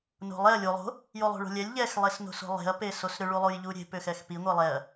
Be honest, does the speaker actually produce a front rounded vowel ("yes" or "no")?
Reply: yes